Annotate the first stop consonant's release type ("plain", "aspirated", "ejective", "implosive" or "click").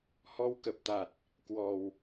plain